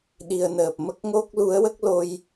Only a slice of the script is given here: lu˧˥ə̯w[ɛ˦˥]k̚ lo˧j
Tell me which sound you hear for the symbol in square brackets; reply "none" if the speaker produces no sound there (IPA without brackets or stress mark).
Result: ə˦˥